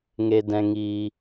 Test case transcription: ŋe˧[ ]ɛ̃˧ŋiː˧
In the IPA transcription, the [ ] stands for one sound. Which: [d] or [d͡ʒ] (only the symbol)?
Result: d